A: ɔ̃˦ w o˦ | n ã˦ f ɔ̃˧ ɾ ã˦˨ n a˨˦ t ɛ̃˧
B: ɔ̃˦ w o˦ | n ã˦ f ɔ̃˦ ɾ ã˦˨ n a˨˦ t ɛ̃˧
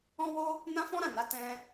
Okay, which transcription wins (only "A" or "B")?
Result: B